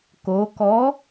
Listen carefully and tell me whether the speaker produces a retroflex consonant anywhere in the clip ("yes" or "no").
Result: no